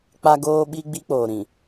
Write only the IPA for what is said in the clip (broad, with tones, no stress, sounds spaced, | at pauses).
k͡p a˦ ɡ oː˦ ɓ i˦ ɡ͡b i˦ k͡p oː˨ ɾ ĩ˨